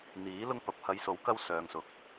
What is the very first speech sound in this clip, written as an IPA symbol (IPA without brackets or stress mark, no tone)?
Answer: n̪